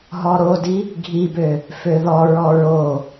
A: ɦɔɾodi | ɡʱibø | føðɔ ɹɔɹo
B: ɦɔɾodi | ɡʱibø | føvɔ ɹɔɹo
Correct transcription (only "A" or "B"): A